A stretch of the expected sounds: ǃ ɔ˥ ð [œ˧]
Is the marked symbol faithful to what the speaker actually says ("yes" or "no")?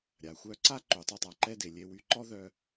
yes